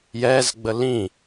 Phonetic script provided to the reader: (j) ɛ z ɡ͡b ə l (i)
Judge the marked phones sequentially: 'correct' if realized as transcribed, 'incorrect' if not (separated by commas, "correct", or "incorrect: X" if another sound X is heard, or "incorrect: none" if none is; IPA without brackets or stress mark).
correct, incorrect: ĩ